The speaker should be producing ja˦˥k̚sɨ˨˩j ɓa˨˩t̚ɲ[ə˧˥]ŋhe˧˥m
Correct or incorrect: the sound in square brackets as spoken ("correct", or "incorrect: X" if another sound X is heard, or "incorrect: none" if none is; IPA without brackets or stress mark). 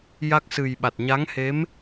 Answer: incorrect: a˧˥